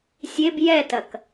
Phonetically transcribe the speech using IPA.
sʲeb jɛtɐk

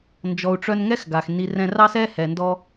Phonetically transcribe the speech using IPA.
nd͡ʒɔ˨u̯ʈ͡ʂœ˧n ŋɛ˦xɡa˨x ni˨ rɛ̃˧rɑ˦sɛ˦hɛ˨ ndɔ˧

